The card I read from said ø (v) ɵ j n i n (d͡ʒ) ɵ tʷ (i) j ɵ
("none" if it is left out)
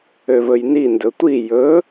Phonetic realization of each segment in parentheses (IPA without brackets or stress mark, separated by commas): v, d, i